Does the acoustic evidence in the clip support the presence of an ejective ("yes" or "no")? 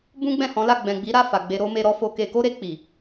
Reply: no